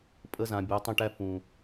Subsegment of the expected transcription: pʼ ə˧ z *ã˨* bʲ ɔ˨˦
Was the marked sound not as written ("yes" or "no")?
no